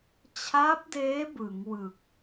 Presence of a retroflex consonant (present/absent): absent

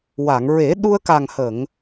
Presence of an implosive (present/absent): present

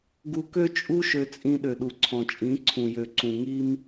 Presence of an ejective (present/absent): present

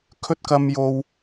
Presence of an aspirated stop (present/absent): present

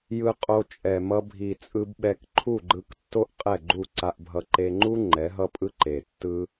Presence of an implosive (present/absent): present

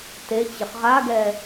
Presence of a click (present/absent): absent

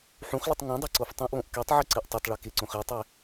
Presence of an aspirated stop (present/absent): absent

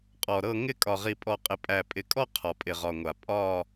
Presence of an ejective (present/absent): present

